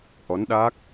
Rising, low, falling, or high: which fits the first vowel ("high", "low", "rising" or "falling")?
rising